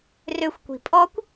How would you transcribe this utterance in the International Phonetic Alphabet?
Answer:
r ø xʷ kʷ i̤ pʼ ɔ kʷ

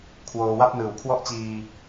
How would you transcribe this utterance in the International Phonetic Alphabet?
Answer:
kʰ w oː˧ w a˥˩ p̚ n ɯː˨˩ w kʰ w ɔ˥˩ ʔ t͡ɕ iː˧

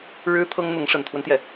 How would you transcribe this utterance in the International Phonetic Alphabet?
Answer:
ɻ ɻ̩˥ t̪ʰ ɤ˥ ŋ n̪ ʊ˧˥ ŋ ʂ ə˨˩ n t̪ʰ w ə˦ n t̪ j ɛ˩

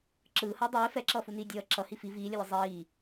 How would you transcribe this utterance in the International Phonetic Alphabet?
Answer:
ǁ ɯː h ʌː dˤ eː f ɛ ǁ ʌː f u n iː dʲ ʌː ǁ ʌ h i f i v iː lʲ ʌ lʲ ɯ zˤ iː

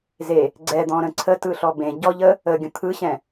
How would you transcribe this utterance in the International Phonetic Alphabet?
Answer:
z e | ɡ͡ǀ ɛ d̪ ɔ̃ ɾ ə̃ ǀʰ ə t ɯ ɬ ɔ b ẽ ɟ ɔ ʎ ə | ə ɡʲ ə̃ t̪ʰ ɯ ɕ ɛ̃

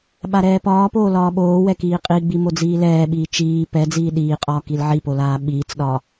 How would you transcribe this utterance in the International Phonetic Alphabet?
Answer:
ɓ a ɾ ɛː p ɒː p oː l ɒː ɓ oː w ɛ k iː qʼ i ɡ͡b i m o d͡z iː l ɛː ɓ iː t͡ʃ iː p ɛ d͡z iː ɗ iː qʼ ɒː k i l ʕ i p o l aː ɓ iː t͡s ɗ ɒ

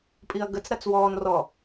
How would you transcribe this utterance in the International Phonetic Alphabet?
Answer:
pʼ i ɐ̯ ɡ ə t͡s ɾ a t͡s w ɔː n r ɔ

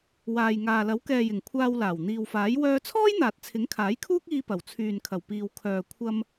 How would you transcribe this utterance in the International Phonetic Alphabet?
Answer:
w aː˨ j ŋ aː˨ l ɐ˨˥ w k ɛː˨ j ɪ˨˩ ŋ kʷʰ aː˧ w l aː˨˩ w n̪ iː˨ w f aː˨˥ j w œː˧ t͡sʰ ɔː˥ j n̪ aː˨ t̚ t͡sʰ ɪ˨˥ ŋ kʰ aː˨˥ j kʰ uː˥ k̚ iː˧ p ɐ˨˩ w t͡sʰ yː˨ n kʰ ɐ˨˩ w p iː˨ w kʰ œː˨ kʷʰ ɐ˧ m

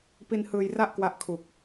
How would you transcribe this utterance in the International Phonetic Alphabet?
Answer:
p i˧ n h ɯː˧ j r a˥˩ ʔ k w a˦˥ ʔ kʰ u˨˩ k̚

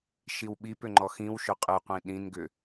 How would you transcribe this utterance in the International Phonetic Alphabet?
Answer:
ʃ i w ɓ i p ʏ ŋ͡ǃ ɔ x ĩ w ʃ ʏ qʼ ɨ qʷ ĩ ɗ ĩ n ɡ ʏ

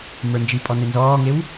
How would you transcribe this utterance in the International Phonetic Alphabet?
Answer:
m ə˞ n d͡ʒ i pʼ ɔ n e n z ɔː ŋ e w

